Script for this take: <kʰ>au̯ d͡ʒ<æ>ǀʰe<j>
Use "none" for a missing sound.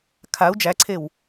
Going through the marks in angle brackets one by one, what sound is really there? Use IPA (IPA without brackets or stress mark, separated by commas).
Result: kʰ, æ, w